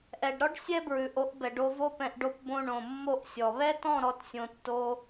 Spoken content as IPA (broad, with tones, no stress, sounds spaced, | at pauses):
ʔ ɛ˨ ɖ ɾ ɔ˦ ɖ sʲ ɛ˦ b ɹ ʉ˨ ʔ o˨˦ ʔ b ɛ˨ ɖ o˧ v o˧ p ɛ̃˨ ʔ ɖ o˧ p b õ˧ ɳ õ˨ mː o˦˨ ʔ sʲ ɔ˨ β ɛ˦ t ɔ̃˦˨ ɾ ɔ˧ t sʲ õ˧ tː o˦